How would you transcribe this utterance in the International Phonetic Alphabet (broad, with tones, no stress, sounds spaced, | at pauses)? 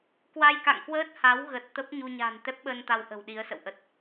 k w a˧ j k a̰˧˨ ŋ k w əː˦˥ t̚ h a˨˦ w ɣ ə˨˩ t̚ t̪ ə˦˥ p̚ ɲ u˧ ɲ a̤˨˩ n t̪ ɛ˦˥ p̚ ɓ əː˧ n t̪ a˧ w ʔ ə̤˨˩ w ɗ i˨˦ ə̯ s ə̰˧˨ w ʔ ə˦˥ t̚